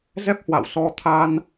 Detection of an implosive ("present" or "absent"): absent